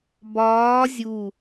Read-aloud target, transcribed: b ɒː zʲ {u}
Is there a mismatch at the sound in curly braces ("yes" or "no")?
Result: no